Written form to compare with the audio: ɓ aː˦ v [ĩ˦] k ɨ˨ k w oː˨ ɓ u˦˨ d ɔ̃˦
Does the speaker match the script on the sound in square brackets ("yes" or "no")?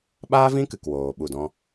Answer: yes